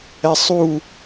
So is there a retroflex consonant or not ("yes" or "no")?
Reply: no